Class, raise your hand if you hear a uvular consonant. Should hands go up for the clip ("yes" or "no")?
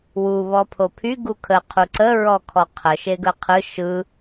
yes